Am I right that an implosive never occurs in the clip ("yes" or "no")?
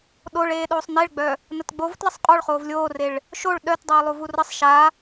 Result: no